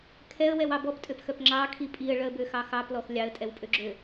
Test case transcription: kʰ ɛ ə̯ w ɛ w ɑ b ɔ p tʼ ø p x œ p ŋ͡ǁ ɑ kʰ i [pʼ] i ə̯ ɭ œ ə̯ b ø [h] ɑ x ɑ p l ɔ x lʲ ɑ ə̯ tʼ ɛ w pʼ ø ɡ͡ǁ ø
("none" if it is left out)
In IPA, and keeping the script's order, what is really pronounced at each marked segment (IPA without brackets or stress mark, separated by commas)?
pʼ, x